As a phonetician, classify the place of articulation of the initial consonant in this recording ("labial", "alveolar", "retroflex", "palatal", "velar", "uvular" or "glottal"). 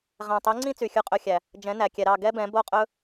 uvular